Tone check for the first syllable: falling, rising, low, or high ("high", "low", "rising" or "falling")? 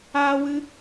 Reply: high